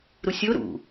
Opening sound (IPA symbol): ɾ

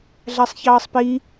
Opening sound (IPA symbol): ɮ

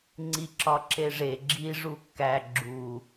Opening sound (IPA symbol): ŋ͡ǀ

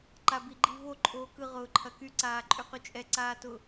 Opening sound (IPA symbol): ǃ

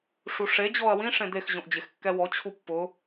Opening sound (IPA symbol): ʂ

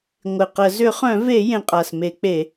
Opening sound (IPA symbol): ŋʷ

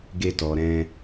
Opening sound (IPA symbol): ɡ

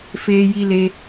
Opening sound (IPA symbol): f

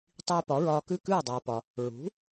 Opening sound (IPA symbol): tˤ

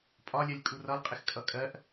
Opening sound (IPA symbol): pʼ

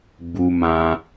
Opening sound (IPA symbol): ɡ͡b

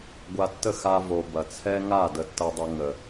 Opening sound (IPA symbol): ɡʷ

